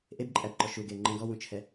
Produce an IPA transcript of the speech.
ʔ e b ǃʼ æ b ǃ ɔ ʃ u ɡ e ŋ͡ǃ ə̃ ɡ ɔ w ũ t͡ʃʰ ɛ

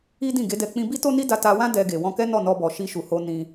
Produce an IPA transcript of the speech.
i˦ d ĩ˦˨ ɡ e˨˦ d ɛ˧ k͡p ĩ˧ b i˦ t o˦ n i˦ d a˧ t a˧ w ã˦ d ɛ˧ ɡ e˨ w ɔ̃˧ k ɛ˦ n ɔ˦˨ n ɔ˧ b ɔ˨ ʃ i˧ ʃ u˨ h o˧ n ĩ˧

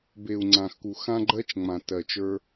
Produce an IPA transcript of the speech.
b e˨ u̯ ŋ͡ǀ ã˨ x k u˨ x ã˦ ɡ͡ǃ ɜ˦ t͡ʃ ŋ͡m ã˨ t ɜ˨ t͡ʃ ə˞˦

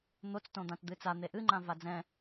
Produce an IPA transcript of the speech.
n̪ o t͡s t õ d̪ ã t d̪ ɨ t͡s a n̪ e ʔ ɨ ŋ͡ǃ ã v a d͡z ɛ̃

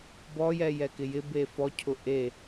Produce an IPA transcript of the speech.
b ɔ j ɛ j ɛ k ɪ j ɪ b e f ɔ cʰ ʊ ʔ e

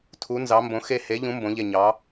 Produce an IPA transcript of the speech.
tʰ u˨˥ n z ɑ˨˥ m b õ˨˥ x e˦˨ h e˨˥ ʎ ũ˨˥ m b õ˨˥ ʎ e˦˨ ɲ ɑ˨˥

